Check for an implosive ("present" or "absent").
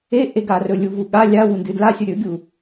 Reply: present